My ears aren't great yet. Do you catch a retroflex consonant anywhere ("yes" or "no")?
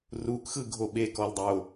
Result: no